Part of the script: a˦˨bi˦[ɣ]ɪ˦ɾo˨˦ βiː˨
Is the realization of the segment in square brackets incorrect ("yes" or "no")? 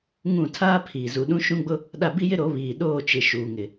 yes